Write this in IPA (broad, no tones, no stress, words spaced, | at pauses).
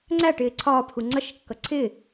ŋ͡ǀæʈɪː ǀʰɒːpxu ŋ͡ǀʌʃkːʌ ǀʰɪː